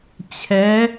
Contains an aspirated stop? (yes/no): yes